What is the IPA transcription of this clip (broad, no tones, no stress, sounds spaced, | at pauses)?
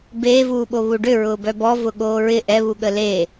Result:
b eː v uː ɓ o β u ɖ ʏ ɹ ʊː b œ b ɔ v ʊ ɠ oː ɹ ɪ ʔ ɛ β u ɠ ə l eː